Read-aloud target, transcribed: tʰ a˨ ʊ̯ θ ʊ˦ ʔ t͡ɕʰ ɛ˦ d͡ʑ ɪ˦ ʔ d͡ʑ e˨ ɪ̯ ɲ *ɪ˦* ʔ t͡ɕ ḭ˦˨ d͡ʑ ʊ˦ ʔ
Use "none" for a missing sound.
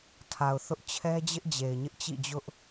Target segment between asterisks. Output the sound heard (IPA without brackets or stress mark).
ɪ˦